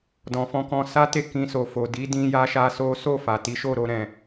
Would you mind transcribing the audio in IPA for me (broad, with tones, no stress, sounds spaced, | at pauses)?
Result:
d ɔ̃˨ f ɔ̃˧ k ɔ̃˧ s a˦ t e˦˨ k ĩ˧ s o˨ f o˨ d i˨˦ d ĩ˧ j a˦ ʃ a˦ s o˦ s o˦˨ f a˨ t i˨˦ ʃ o˦˨ ɾ o˧ ɾ ɛ̃˨